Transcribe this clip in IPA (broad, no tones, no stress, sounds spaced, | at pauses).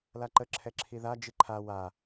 l a ǃ ə ǁʰ ɛ ǁʰ i ð a d͡ʒ i ǃʰ a w a